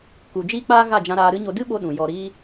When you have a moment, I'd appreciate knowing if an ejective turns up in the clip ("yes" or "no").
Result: no